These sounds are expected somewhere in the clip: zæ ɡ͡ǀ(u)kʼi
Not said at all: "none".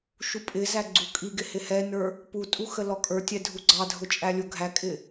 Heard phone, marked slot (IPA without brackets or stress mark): u